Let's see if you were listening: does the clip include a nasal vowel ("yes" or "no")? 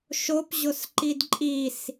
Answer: no